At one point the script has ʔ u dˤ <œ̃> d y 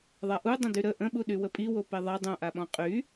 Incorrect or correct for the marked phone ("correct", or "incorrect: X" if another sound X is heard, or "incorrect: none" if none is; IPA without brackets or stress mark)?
incorrect: ə̃